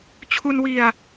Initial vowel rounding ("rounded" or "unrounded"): rounded